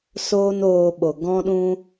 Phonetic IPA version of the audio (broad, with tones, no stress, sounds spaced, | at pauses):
s oː˦ n oː˧ ɓ o˨ ɡ ɔ̃˦ ɗ ũ˦